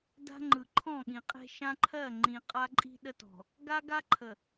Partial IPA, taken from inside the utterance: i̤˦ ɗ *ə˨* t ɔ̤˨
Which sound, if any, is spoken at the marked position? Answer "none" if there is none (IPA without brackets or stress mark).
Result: ə˦